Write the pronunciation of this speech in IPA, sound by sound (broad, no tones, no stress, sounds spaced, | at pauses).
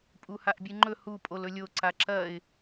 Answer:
pʼ u h a ʔ bʲ ɨ ŋ͡ǃ ɵ h u pʼ o l ɵ lʲ o ǀ a ǁ ɐ ɪ̯